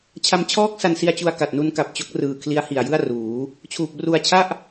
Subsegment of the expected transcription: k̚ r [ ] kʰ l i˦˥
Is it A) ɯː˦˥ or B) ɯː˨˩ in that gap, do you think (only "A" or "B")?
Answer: B